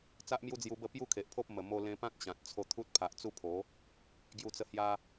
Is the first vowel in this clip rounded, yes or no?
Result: no